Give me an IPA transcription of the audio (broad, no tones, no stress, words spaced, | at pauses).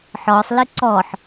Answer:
ħɔsˤlɨ ǀɔħ